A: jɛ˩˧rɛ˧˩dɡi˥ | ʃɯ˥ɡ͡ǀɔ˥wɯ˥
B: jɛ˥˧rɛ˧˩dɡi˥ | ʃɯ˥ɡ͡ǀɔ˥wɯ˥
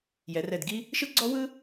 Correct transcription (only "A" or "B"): A